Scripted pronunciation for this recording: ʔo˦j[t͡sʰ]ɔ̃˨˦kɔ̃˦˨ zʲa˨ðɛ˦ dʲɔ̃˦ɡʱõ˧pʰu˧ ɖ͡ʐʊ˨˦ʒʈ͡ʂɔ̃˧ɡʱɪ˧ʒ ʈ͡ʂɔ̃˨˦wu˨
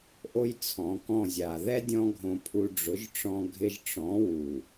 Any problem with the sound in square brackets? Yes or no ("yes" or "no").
no